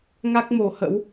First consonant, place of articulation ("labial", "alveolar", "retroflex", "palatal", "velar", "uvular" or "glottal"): velar